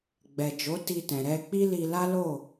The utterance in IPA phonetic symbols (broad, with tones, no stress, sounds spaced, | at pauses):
ɡ͡b ɛ˨ d͡ʒ o˨˦ t i˧ t ɛ̃˨ ɾ ɛ˧ k͡p i˦ l i˧ l a˦ l o˦˨